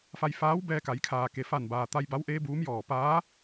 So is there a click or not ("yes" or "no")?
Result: no